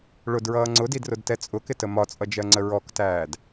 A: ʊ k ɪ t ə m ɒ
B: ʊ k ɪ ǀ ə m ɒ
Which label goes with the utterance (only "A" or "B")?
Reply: A